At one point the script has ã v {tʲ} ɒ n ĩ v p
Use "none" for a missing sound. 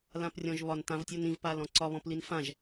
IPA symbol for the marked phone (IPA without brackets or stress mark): tʲ